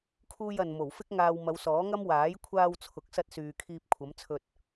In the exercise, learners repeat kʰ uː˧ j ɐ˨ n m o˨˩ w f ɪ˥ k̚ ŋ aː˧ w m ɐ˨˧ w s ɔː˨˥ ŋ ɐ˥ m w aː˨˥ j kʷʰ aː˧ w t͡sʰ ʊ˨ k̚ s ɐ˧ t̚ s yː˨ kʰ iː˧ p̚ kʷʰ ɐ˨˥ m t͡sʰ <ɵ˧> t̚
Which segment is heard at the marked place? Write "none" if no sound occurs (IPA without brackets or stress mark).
ɵ˧